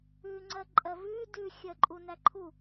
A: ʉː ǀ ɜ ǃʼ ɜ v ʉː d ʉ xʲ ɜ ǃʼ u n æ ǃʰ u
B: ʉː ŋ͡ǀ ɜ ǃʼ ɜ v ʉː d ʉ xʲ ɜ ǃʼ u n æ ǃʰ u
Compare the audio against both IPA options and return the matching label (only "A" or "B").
B